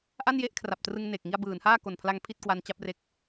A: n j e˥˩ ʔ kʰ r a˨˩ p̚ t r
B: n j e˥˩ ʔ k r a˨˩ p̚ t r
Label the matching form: A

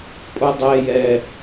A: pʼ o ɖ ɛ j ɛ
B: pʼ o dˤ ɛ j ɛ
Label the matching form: B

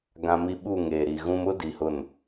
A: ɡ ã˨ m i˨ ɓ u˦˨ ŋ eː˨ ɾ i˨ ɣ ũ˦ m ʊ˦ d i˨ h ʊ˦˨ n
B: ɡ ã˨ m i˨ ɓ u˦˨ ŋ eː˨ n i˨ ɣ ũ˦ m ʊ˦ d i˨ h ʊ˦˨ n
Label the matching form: A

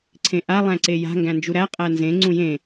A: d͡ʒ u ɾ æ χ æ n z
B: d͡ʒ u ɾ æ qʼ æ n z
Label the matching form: B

